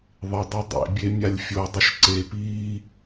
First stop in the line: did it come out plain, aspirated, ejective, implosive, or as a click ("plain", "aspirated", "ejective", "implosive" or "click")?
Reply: plain